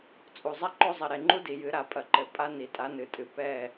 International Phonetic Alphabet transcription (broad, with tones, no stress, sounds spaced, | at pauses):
t͡sʼ u˨ zˤ a˦ ǃ o˦ zˤ ɐ˨ ɾ e˨ ŋ͡ǃ u˦ d i˨ j ɨ˨˦ ɾ a˨ pʼ ɐ˨ ǃ ɘ˨ pʼ a˦ n i˨ tʼ a˨˦ n ɨ˨ tʼ ɨ˨ p ɛ˦˨